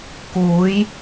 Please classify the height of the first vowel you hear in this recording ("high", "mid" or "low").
high